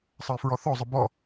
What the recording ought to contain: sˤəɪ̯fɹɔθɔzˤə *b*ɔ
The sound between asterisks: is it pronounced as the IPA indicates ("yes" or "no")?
yes